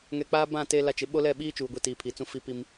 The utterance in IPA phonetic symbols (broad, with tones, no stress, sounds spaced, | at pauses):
ŋ ɛ˨ k͡p aː˦ b ã˦˨ t e˦ l a˦ t͡ʃ ɪ˨˦ ɓ o˦ l ɛ˦˨ ɓ iː˦ t͡ʃ uː˨ ɡʷ i˨ t iː˨ pʰ i˨ t͡s ũ˦ f i˦ p i˦ m